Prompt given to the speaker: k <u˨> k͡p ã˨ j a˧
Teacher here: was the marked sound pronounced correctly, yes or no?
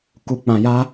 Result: yes